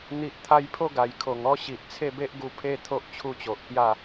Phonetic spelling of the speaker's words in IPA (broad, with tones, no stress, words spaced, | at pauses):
n̪i˨ʔt̪ʰa˧jpʰo˥˧ ɡa˨˩jkʰo˨˩ŋ ɔ˦ ɕi˨ʔt͡sʰe˥˧be˦ʔɡu˧ pʰe˦t̪ʰo˦ʔ t͡ɕʰu˦t͡ɕo˨ʔkja˥˧